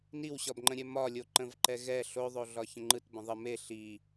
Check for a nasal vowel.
present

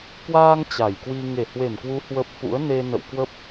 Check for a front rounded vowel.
absent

